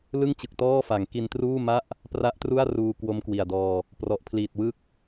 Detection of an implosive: absent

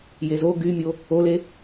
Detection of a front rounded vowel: present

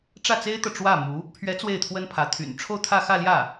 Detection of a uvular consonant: absent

